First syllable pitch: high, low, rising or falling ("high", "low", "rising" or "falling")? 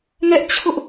high